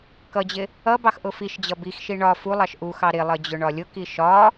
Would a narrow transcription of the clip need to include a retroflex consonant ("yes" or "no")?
yes